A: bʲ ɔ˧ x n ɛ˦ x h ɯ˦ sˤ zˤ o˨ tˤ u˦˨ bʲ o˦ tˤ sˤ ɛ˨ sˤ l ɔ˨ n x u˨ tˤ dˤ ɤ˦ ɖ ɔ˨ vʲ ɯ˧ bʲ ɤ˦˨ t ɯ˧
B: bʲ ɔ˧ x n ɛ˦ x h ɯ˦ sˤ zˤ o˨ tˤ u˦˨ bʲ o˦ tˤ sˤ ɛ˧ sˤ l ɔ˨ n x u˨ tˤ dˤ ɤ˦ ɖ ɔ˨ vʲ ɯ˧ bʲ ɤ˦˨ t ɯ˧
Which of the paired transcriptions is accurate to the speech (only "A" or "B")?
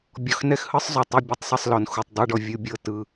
B